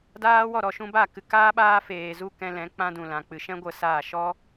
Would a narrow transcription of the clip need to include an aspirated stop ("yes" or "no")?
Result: no